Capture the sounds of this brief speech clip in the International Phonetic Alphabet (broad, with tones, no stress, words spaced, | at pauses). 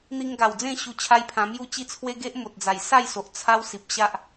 n̪i˧ŋɡa˨˩wd͡zẽ˥˧ ɕu˧t͡ɕʰa˦jpʰã˧mju˥˧ t͡ɕi˦t͡sʰwe˦ ɡe˦ʔ mo˨t̚d͡za˨˩j sa˥˧jso˨ʔ t͡sʰa˦w si˨p̚ ɕa˦ʔ